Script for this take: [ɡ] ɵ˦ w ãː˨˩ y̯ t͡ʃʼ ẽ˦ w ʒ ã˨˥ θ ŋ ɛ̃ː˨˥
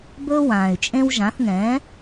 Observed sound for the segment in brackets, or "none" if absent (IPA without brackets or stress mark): b